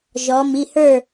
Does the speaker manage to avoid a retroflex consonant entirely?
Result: yes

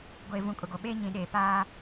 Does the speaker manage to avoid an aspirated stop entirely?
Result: yes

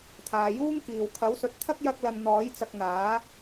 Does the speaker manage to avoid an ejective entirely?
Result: yes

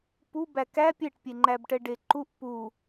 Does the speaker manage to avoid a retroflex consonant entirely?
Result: no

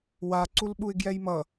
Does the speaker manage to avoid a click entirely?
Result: no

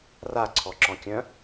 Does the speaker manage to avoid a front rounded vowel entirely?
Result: no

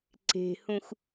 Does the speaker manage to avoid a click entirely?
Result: no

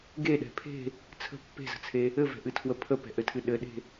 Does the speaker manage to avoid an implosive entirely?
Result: no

